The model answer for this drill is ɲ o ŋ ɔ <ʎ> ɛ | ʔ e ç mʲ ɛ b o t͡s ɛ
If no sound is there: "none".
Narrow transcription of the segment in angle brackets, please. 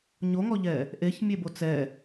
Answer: ʎ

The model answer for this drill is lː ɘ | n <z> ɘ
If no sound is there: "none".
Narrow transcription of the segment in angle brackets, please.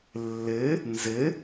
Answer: z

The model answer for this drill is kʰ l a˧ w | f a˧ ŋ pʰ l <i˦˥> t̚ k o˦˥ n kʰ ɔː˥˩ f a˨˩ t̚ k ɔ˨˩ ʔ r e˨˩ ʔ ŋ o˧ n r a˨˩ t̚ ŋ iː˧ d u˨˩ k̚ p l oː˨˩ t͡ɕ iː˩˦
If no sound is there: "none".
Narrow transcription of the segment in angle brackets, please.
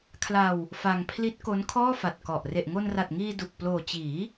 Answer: i˦˥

